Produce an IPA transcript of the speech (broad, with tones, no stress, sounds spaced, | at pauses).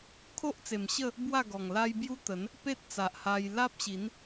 kʰ o˦ ʔ t͡s e˨˩ m ɕ ə˥˧ | b w a˥˧ ɡ ɔ˨˩ ŋ l a˦ j b j u˦ t̪ ə˨˦ n | p e˦ t̚ t͡s a˨ ʔ h a˧ j l a˦ p̚ ɕ i˨˦ n